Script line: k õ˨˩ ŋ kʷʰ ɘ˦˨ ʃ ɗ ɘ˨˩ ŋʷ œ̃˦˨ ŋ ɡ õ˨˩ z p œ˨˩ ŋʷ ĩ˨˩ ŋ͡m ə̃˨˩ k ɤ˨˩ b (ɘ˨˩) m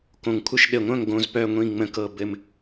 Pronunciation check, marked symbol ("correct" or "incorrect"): correct